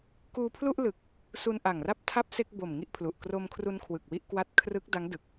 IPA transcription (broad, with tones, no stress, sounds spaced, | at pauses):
k uː˧ pʰ l u˥˩ ʔ l ɯ˨˩ k̚ | s u˧ n ʔ a˨˩ ŋ r a˥˩ p̚ tʰ a˥˩ p̚ s e˥˩ k̚ b o˨˩ m ŋ i˥˩ ʔ pʰ l u˨˩ ʔ k r o˧ m kʰ r u˧ n kʰ w ɯ˨˩ k̚ w i˥˩ ʔ k w a˦˥ t̚ kʰ r ɯ˦˥ k̚ d a˦˥ ŋ d ɯ˨˩ k̚